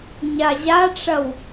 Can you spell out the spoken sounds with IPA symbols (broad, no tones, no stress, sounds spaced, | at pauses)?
ɲ a ʑ a ʈ͡ʂ ɐ w